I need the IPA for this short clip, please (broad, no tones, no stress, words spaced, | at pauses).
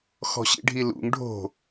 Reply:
xɔ̤ɕḭɖʱilṵŋ ɖʱo̤